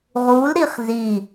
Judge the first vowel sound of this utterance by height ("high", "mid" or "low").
high